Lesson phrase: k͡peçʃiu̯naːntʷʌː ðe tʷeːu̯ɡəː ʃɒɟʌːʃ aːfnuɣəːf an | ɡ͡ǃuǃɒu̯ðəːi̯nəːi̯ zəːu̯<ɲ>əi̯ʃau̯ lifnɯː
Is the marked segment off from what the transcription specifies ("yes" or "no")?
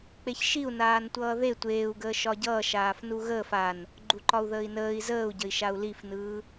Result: yes